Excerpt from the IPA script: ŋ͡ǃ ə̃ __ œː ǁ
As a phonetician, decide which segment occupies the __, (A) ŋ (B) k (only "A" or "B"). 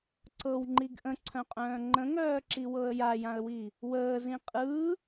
A